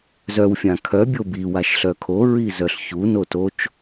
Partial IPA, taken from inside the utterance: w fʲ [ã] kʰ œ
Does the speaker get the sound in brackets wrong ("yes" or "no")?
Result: no